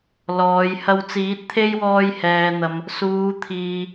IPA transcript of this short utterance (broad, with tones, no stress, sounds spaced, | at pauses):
l ɔː˨˧ j h ɐ˧ w t͡s iː˨˥ t̚ t̪ʰ e˥ j w ɔː˧ j h ɛː˨ n̪ ɐ˨ m | s uː˨˧ t̪ʰ iː˨